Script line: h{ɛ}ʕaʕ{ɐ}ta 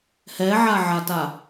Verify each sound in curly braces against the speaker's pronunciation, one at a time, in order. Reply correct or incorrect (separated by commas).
correct, incorrect